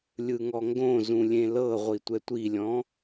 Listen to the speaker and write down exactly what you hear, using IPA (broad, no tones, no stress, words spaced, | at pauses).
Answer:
lʲɯŋɔŋɡõzũ lʲẽlɤʁʷi tʷɛtʷilʲɔ̃